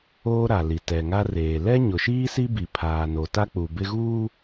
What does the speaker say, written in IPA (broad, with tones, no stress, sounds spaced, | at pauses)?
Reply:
oː˦ ɾ a˨ l i˨ t ɛ˨ ŋ a˦ r eː˨ l ɛ˦ ɲ ʊ˨ ʃ iː˦ s i˦ b i˨ pʰ aː˨ n o˨ t a˦ k͡p u˨ b ɪ˦ ɣ uː˦